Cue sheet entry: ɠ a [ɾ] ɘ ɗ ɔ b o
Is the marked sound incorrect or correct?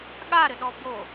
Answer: correct